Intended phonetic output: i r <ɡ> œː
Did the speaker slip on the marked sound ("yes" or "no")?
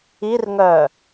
yes